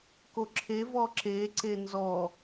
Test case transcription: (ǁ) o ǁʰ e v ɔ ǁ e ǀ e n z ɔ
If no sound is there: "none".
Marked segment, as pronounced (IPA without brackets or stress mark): k